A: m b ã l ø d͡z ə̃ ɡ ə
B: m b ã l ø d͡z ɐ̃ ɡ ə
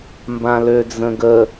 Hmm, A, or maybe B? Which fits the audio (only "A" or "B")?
A